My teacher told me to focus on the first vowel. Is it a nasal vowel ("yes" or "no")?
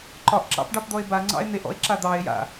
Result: no